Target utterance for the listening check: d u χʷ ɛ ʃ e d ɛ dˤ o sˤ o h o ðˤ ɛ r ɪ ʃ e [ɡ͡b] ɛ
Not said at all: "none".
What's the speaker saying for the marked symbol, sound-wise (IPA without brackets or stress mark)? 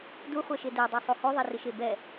b